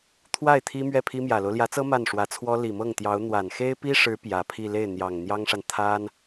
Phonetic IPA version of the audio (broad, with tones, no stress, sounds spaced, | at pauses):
t̪ʰ w a˥˩ ɪ̯ t̪ʰ i˥ m ɥ ɛ˥˩ pʰ i˥ m j ä˨˩ l o˦ ʊ̯ l j ä˧˥ t͡s ɤ˥ m a˥˩ n ʂ w ä˧˥ t͡sʰ w ɔ˥ l i˨˩ m ɤ˥˩ ŋ t̪ j ɑ˧˥ ʊ̯ n̪ w a˨˩ n x e˥ ɪ̯ p i˥ ʂ ɻ̩˧˥ p j ä˨˩ pʰ i˥˧ l e˥˩ ɪ̯ n̪ j ɑ˨˩ ŋ n̪ j ɑ˥ ŋ ʂ a˨ n t̪ʰ a˥ n